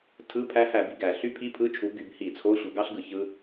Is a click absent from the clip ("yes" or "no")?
yes